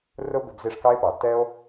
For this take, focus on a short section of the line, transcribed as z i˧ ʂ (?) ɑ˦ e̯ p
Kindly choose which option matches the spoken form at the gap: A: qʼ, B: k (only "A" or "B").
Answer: B